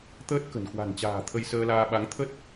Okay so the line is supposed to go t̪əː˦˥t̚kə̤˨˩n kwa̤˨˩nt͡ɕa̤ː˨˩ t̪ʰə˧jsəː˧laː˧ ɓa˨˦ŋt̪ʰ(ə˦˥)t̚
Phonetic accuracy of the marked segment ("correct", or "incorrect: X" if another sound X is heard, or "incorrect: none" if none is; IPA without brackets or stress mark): correct